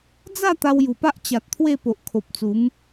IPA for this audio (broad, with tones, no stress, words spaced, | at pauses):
d͡za˥˧ t̪a˧wju˨˩pa˦ʔ t͡ɕa˨t̚t̪ʰwe˥˧ po˨ʔkʰo˨p̚t͡su˨˦m